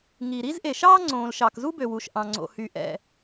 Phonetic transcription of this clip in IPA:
ŋi˩ɾi˥z ʔe˩ʃɑː˥ŋ͡ǀõː˩l ʃɑ˩kzu˥bø˩wu˩ʃ ʔɑ̃˩ŋ͡ǀo̰˩hy˩ ʔɛ̰˩

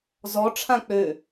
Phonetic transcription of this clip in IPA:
zɔ ʈ͡ʂʰãk͡pø

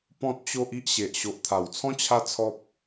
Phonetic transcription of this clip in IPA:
pɔ̃˦t̚t͡ɕo˦ʔ i˦ʔɕe˨ʔ ɕo˨ʔt̪ʰa˨˩wt͡sʰɔ̃˦ t͡ɕʰa˦t͡sʰɔ˦p̚

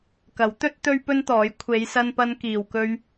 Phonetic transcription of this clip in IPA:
kɐ˨˥w t̪ɵ˥t̚ t̪ɵ˥ɥpɵ˥nt̪ɔː˨˥j kʷʰe˨˧jsɐ˧npɐ˧n kiː˨wkɵ˧ɥ

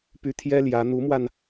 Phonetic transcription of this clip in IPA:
py˥ t̪ʰjɛ˥ ljä˧˥ n̪u˧˥mwa˧n

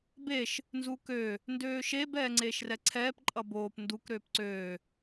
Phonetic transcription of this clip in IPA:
beʃ | nzukø | ndøːʃeb ɛːŋ͡ǀeːʃrɛǀʰɛːp ǃʼʌboːp nduk ɾøːpǀøː

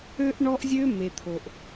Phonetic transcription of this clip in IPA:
ø˦ʔɳɔ˦ʔzʲø˦ me˨t̪ʰo˨ʔ

